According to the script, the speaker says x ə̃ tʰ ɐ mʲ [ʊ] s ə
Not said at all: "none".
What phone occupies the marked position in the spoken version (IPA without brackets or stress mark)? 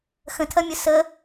ʊ